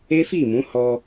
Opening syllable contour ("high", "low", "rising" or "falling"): high